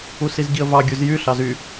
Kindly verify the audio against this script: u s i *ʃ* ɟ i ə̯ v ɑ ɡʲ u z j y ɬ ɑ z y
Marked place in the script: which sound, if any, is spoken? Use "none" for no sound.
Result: z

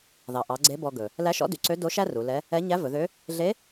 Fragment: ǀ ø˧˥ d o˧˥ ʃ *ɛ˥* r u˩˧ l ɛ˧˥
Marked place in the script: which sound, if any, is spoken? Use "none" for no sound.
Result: æ˥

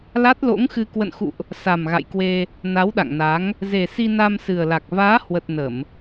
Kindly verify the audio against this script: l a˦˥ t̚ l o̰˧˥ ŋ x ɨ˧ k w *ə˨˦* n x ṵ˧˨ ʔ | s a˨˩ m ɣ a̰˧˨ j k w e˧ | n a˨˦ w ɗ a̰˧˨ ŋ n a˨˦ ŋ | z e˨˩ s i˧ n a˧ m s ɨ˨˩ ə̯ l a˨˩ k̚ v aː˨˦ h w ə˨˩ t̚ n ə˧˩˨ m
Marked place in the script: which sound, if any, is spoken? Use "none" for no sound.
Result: ə̰˧˨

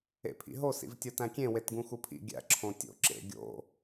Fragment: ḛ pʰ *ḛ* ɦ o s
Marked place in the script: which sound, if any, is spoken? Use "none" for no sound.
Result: ḭ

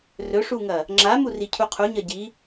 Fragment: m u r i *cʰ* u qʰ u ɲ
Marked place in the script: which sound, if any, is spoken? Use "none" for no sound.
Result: cʰ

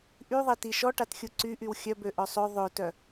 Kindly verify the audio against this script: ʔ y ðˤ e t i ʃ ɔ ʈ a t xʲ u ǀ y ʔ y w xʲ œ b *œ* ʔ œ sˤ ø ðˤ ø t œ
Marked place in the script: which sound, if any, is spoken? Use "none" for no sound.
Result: ø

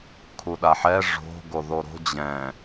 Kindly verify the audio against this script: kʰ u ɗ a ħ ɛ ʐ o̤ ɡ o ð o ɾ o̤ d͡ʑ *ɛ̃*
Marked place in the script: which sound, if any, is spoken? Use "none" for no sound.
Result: ɛ̃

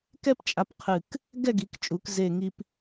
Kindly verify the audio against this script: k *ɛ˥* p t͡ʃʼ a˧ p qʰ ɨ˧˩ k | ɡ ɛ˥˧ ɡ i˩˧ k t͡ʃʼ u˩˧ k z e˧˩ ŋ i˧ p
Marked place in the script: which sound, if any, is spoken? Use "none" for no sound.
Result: ɛ˥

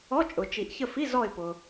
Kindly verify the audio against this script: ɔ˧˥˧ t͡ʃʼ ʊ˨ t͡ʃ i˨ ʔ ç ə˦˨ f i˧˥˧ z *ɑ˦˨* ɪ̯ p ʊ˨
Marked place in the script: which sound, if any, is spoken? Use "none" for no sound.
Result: ɔ˦˨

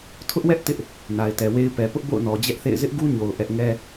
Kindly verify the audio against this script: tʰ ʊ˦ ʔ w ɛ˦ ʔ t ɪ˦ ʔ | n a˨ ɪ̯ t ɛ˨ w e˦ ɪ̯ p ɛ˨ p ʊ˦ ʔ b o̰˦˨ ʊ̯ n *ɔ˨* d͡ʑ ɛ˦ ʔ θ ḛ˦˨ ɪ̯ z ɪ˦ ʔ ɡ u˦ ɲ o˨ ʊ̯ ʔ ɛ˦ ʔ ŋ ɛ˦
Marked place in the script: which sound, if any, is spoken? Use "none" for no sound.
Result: ɔ˨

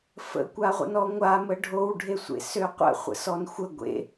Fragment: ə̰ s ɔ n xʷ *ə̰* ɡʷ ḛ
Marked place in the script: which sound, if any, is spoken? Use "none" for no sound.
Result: ə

